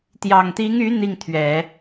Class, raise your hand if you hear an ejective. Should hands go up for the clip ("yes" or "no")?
no